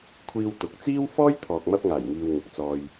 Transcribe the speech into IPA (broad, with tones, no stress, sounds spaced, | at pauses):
kʷʰ iː˧ w t̪ ʊ˨˥ k̚ t͡s iː˥ w f ɔː˥ j t̪ʰ ɔː˨ k̚ m ɐ˧ p̚ ŋ aː˨˩ j ŋ iː˨ w ŋ ʊ˨ k̚ t͡s ɔː˧ j